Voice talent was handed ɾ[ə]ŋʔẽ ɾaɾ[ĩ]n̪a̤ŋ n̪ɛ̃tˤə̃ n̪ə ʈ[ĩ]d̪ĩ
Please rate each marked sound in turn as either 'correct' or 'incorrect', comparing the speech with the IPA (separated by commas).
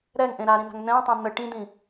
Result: incorrect, correct, correct